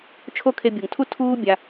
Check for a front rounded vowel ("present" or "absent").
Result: absent